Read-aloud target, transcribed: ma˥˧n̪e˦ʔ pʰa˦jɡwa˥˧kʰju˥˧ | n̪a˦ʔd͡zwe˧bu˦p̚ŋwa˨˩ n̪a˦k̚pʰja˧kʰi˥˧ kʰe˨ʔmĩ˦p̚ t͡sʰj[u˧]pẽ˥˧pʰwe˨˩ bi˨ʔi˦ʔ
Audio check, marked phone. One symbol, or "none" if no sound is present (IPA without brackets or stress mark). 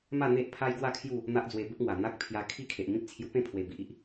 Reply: u˧